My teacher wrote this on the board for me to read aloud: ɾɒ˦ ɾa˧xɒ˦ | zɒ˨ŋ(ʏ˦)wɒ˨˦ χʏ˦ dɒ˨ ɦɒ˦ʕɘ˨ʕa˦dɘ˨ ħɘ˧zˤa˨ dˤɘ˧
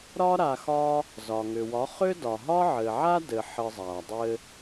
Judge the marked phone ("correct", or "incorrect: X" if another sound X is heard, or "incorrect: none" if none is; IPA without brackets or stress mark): incorrect: ʏ˨